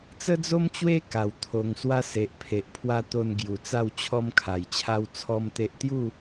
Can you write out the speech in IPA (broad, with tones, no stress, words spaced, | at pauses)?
t͡sə˦d͡zo˦mt͡ɕwe˦ ka˨˩w t̪ʰo˧ŋswa˦ se˨ʔpʰe˨ʔpʰwa˦ t̪o˧n ɡju˨˩t͡sa˥˧w t͡ɕʰɔ˦m kʰa˨˩jt͡ɕʰa˦w t͡sʰɔ˦mt̪e˦ʔ t̪ju˥˧